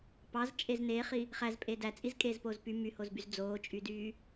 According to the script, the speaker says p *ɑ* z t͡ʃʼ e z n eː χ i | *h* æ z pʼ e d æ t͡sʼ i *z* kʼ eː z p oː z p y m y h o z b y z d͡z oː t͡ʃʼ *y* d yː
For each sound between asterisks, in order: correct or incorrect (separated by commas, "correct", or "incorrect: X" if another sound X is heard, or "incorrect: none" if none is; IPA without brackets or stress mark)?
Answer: correct, incorrect: χ, correct, correct